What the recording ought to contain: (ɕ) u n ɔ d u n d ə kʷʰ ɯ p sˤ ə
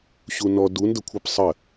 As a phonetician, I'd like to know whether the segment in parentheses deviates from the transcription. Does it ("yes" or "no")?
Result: no